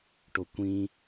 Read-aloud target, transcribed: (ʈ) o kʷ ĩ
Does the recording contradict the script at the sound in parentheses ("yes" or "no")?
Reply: no